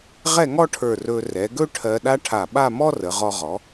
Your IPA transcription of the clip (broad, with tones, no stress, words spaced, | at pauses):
ʁɛ˥˧ŋɔ˥ʈʰə˞˧˩ rɵ˧ rɛ˩˧ɡɵ˥ ʈʰɜ˧ɗa˥ʈʰa˧˩ ɓa˥˧mɔ˥rə˩˧ ʁɔ˧ʁɔ˩˧